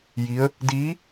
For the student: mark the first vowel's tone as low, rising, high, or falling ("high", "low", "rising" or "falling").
rising